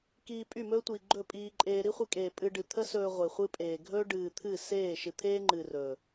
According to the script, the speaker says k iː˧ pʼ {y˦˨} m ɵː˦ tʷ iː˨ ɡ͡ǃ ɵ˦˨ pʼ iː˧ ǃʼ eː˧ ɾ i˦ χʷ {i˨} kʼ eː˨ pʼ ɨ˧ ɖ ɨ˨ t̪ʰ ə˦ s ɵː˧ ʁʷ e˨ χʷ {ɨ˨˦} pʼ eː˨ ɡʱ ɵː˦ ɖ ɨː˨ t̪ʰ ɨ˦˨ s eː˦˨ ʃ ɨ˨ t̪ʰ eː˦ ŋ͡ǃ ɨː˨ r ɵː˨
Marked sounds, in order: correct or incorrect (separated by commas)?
correct, incorrect, incorrect